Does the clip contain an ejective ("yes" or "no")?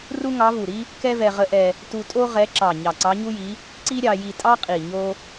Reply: yes